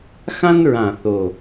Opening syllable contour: high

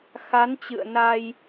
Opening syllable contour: rising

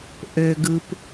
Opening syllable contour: low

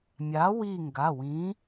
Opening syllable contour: rising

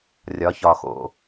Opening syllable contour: rising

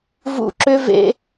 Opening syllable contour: high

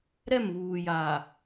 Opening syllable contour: falling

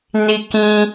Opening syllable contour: high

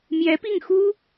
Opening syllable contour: rising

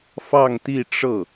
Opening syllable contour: falling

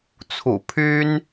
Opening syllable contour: low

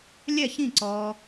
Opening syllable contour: falling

